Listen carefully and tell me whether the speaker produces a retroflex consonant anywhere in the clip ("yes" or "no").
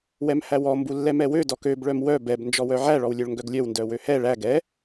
yes